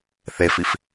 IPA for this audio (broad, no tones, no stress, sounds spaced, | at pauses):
θ e f i f